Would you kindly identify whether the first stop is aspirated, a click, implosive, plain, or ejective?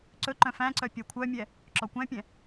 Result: click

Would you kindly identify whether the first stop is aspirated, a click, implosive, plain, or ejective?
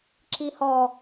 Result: click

